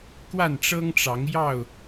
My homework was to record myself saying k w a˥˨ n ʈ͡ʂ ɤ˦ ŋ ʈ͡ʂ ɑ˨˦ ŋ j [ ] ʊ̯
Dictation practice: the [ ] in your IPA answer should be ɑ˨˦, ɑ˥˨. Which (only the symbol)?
ɑ˥˨